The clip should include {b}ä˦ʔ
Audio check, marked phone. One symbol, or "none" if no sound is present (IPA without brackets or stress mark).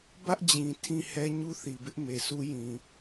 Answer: b